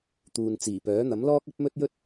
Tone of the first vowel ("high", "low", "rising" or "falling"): low